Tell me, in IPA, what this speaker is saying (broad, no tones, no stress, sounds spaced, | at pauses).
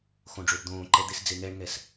x õ ɖ͡ʐ o b d̪ õː ǃ ɛ d̪ e s d͡z e ŋ ɛ ɳ ŋ ɛ s